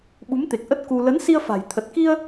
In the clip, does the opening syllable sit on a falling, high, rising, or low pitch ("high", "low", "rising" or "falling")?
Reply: rising